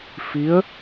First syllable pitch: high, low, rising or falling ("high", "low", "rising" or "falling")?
rising